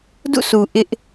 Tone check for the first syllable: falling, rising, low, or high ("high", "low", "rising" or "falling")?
falling